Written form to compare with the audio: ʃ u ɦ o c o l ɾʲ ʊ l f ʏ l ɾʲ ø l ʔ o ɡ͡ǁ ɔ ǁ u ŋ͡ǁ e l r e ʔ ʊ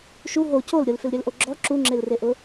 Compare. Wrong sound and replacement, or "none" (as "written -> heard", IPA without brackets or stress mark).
none